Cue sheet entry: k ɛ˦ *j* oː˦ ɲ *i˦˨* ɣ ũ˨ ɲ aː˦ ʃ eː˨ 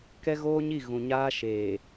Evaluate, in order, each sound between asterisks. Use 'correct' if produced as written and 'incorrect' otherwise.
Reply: incorrect: ɣ, correct

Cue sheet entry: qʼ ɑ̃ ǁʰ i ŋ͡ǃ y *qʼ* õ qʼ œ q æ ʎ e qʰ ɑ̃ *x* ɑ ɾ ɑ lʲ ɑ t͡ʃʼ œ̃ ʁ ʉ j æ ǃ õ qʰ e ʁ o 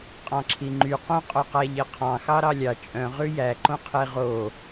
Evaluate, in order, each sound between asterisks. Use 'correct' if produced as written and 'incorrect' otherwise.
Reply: incorrect: q, correct

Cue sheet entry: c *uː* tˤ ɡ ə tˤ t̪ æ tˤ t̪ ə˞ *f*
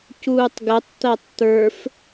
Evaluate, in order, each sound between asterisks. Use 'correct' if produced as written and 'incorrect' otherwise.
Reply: correct, correct

